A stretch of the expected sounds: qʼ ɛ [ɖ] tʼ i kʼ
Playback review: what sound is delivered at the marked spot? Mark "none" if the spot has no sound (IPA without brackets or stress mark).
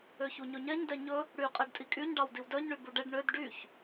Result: ɖ